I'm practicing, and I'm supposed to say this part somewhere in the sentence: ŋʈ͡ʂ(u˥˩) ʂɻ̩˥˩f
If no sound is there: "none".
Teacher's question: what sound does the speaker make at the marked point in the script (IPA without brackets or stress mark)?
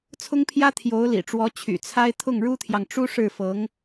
u˥